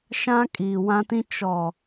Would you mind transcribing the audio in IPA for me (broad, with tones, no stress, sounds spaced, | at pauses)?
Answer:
ʃ ã˦ kʼ iː˨ w ã˦ t ĩ˦ t͡ʃ ɔ˨